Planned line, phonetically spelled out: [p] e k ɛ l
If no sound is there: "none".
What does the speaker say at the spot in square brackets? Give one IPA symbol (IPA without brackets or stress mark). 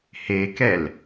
h